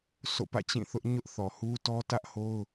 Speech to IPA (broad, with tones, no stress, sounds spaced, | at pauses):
s o̰˦˨ p ä̰˦˨ t͡ɕ ĩ˦˨ θ ʊ˦ ʔ ɲ ʊ˦ ʔ θ ɔ˨ h u˦ t ɔ˦ t ä˦ ʔ h o˦ ʊ̯